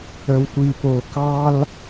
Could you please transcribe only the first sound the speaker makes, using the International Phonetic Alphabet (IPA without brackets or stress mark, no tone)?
ə